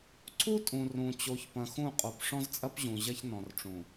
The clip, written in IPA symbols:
ǀʰu˦ tʼũ˨ rũ˨ t͡ɕo˨˦çpɐ̃˨xũ˦˨qʼo˨p ʂɔ̃˦zt͡sʼɐ˦p ʑũ˨ ʑɐ˦çnɔ̃˨rʈ͡ʂũ˨

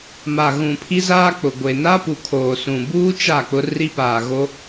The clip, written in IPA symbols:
ma˨ɣũ˨ pʰi˦zaː˦k͡pʊ˨ ɡʷe˨na˦pu˨ kʰoː˨sũ˨buː˦ t͡ʃa˦˨k͡pʊ˦ri˦ paː˨ɣo˦

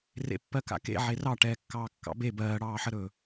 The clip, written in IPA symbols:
rḛpːɜka̰kḛ ʕerɑ ʈɛːkːɑːkːɑ̰be bɜːɽɑːħəɾɵː

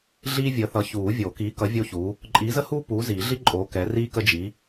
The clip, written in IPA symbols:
ɮiː˥vʲəː˨˥θʌ˨˥ çuː˨˩˦vʲo˨˩˦kiː˨˥kʌ˨˥ vʲo˥çu˨˥ | ǃʼiː˨˥zə˥huː˥ puː˨˥ziː˨˩˦ɮi˥ ǃʼoː˨˥ kɛ˨˥riː˥ kə˥d͡ʒi˨˥

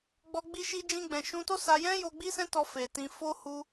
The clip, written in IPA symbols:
ɡ͡bɔ˧ ɡ͡bi˧ʃi˧d͡ʒĩ˧ɡ͡bɛ̃˨ ʃũ˧to˦sa˧jɛ̃˦ jo˧ɡ͡bi˦sɛ̃˦tɔ˧ fe˨tĩ˧ fo˦ hu˦

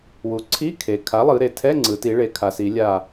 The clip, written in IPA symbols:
wu˩˧ǀʰi˧˥˧ kʰe˩ kʰa˩˥lˠɯ˩˧ ɾe˩ tʰɛ˧˥˧ŋ͡ǀɯ˩˧ti˩˧ ɭe˩˧ kʰa˩˧si˩˧lʲa˧˩

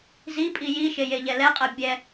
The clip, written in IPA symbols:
zipʼi jiʃe jeʎɛlɛqʼɜ bʲɛ

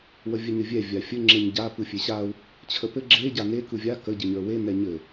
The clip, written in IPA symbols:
wəvʲɘɲɘvʲɛ vʲafʲɘ ŋ͡ǁeɲɟa pɯfʲeɕau̯ | t͡ɕʰəpɘ ɡ͡ǁe ɟane kɯvʲa kə ɟɯɲə˞we nɛɲɘ

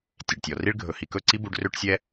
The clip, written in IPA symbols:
tʲe˨ɖtʲɔ˨ri˦ɭ ɡʱɵ˨hi˨kɵ˦˨ǀi˦ bu˧ɖrø˦ʈsʲɛ˦

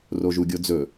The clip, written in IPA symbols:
roʒuɡʲod͡zɵ

